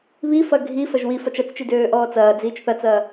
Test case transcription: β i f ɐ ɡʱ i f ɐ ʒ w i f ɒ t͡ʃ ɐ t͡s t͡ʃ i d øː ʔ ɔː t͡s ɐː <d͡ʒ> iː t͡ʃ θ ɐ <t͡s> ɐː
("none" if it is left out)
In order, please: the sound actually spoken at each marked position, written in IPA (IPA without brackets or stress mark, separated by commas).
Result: d͡z, t͡s